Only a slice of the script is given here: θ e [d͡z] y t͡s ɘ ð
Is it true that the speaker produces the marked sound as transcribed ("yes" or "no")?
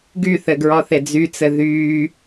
yes